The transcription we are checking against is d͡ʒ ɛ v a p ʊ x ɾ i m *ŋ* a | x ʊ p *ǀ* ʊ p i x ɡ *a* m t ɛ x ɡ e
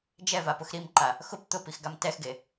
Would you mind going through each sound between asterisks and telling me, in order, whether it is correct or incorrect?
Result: incorrect: ǃ, incorrect: t̪, correct

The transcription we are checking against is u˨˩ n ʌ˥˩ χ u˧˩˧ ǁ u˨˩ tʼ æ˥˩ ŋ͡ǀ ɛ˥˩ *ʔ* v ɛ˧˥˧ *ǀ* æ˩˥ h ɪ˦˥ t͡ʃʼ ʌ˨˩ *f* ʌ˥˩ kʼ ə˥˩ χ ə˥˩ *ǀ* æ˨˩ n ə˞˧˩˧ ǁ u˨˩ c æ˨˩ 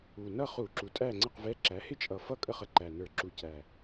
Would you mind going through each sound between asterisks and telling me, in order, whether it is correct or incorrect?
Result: incorrect: q, incorrect: ǁ, correct, incorrect: ǃ

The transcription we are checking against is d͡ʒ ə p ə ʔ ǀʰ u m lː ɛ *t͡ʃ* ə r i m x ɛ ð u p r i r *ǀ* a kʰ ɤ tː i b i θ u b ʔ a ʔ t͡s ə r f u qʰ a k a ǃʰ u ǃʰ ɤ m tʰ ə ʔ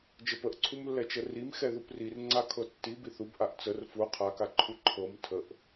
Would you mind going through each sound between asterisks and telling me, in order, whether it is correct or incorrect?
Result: correct, incorrect: ŋ͡ǀ

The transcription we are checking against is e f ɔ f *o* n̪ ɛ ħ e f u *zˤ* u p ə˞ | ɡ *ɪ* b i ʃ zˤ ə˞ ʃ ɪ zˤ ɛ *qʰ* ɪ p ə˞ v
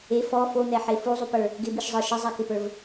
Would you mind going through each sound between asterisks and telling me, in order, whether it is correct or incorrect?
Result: correct, correct, correct, incorrect: k

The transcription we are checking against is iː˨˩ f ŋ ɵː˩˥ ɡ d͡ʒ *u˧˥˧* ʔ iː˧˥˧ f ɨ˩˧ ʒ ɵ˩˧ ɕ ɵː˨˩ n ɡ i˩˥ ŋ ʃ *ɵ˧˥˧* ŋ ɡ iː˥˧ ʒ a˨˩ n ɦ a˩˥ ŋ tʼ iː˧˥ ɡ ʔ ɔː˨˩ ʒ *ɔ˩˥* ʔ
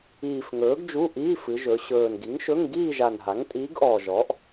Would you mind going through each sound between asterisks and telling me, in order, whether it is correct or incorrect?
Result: correct, correct, correct

